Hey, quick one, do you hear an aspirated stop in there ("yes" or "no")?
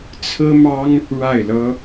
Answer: yes